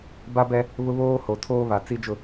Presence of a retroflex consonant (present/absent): absent